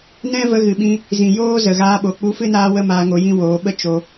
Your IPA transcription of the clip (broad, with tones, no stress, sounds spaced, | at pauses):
n ɛ̃˦ v ə˧ ɣ ɨ˨ ɓ ĩ˧ | z ĩ˨ j oː˦ z ə˨ ɣ aː˧ ɓ o˨ k͡p u˧ f ɨ˦ n aː˦ w ə˦ m aː˧ ŋ o˧ j ĩ˦ w oː˨˦ ɓ ə˦ t͡ʃ o˧